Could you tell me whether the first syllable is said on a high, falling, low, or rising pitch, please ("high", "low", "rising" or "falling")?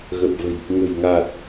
low